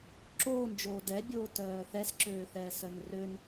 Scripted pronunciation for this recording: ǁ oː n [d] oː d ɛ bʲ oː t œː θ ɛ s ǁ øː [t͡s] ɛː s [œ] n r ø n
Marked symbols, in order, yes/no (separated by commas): no, no, yes